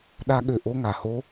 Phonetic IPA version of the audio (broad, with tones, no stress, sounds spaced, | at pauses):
ɗ a˦ ɠ ø˧ ʔ o˦ ŋ a˨ h o˦